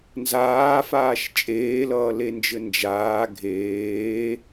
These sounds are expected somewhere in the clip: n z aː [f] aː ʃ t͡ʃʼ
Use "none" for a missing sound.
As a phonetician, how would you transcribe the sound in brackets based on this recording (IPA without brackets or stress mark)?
f